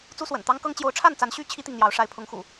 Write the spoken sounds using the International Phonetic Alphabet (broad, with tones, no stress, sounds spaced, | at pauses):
t͡s u˦ s w ə̰˨˩ n t̪ ɑ˦ ŋ k ɤ˦ ŋ t͡ɕ j o˨˦ ʊ̯ ʈ͡ʂʰ a˥˨ n t͡s a˨˦ n ɕ y˦ t͡ɕʰ i˦ t̪ i˨ ŋ n̪ j ɑ˨˦ ʊ̯ ʂ a˨˦ ɪ̯ pʰ ʊ˨˦ ŋ x ṵ˨˩